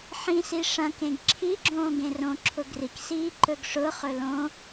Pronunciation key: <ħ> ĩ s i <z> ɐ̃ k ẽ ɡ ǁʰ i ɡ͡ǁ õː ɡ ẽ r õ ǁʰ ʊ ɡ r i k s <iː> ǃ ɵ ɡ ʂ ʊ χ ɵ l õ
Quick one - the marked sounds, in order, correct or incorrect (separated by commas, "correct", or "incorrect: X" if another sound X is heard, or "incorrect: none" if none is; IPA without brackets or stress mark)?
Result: correct, incorrect: ʂ, correct